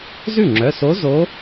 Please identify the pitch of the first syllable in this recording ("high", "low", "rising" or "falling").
falling